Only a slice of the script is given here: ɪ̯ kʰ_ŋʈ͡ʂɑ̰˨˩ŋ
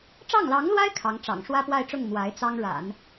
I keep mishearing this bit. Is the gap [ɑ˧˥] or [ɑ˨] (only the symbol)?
ɑ˧˥